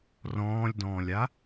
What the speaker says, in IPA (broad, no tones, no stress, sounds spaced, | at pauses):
r ɔ̃ː lʲ d ɔ̃ː lʲ a